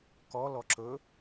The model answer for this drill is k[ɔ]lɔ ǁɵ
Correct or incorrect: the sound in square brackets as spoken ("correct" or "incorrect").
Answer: correct